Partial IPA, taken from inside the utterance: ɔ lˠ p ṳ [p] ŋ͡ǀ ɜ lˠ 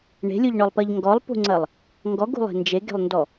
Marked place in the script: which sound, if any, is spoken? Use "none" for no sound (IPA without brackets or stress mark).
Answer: none